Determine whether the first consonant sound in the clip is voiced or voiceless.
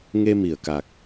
voiced